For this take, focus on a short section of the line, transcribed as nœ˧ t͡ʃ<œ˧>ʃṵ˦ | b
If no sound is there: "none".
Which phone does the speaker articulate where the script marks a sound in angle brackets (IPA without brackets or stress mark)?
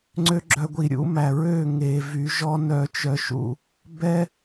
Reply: œ˧